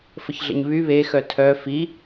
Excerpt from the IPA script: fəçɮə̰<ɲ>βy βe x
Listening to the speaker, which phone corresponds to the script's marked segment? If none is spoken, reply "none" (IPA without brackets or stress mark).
ɲ